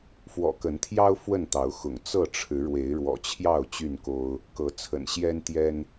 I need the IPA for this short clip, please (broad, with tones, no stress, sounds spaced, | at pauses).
f w ɔ̰˨˩ k ə˨˦ n t̪ʰ j ɑ˦ ʊ̯ f w ə˥˨ n t̪ ɑ˨˦ ʊ̯ x ʊ̰˨˩ ŋ t͡s ɤ˥˨ ʈ͡ʂʰ ɻ̩˨˦ ɻ w e˨˦ ɪ̯ ɻ w ɔ̰˨˩ t͡ɕʰ j ɑ˥˨ ʊ̯ t͡ɕ y˥˨ n k o˦ ʊ̯ | k ɤ˨˦ t͡sʰ ə̰˨˩ n ɕ j ɛ˦ n t̪ j ɛ˦ n